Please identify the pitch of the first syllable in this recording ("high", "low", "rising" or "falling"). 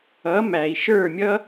rising